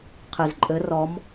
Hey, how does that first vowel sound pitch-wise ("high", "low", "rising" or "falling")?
low